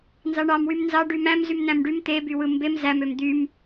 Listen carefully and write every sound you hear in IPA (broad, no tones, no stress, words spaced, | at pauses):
nzɑɳɑmwym nzɑ ɖymæ̃mzym næ̃mɖym t̪ebywɯ mbem zæmøm d̪ym